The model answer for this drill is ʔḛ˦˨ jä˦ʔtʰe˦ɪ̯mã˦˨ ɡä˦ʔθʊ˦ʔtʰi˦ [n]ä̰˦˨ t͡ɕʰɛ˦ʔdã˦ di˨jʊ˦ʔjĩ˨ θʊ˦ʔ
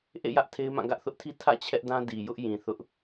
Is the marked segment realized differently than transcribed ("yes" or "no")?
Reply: yes